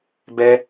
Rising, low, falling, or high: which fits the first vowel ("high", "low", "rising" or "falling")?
high